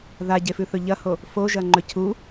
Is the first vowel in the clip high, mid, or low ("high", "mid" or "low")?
low